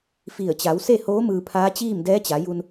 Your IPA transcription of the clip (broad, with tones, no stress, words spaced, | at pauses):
fi˧˩ə̯ t͡ɕa˩˧wse˥˨hoː˧˥ mɯː˧pʰaː˧˥ t͡ɕiː˥˨mdɛː˧˥t͡ɕa˩˧ju˧n